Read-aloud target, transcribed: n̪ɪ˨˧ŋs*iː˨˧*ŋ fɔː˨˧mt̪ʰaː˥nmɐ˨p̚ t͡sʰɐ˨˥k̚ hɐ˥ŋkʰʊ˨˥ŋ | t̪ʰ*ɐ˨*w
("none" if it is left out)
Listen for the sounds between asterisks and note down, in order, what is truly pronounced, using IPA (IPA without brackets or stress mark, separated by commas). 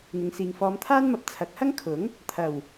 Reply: iː˨, ɐ˨˩